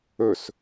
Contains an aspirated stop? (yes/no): no